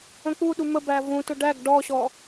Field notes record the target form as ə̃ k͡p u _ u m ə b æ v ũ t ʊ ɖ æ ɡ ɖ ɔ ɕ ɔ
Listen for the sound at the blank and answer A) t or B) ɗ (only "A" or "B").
B